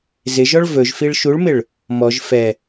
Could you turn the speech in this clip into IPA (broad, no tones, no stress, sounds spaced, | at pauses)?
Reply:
z ɪ ʒ ɔ ɭ v ɵ ʒ f i ɭ ʃ u ɭ m ɪ ɭ | m ɔ ʒ f ɛ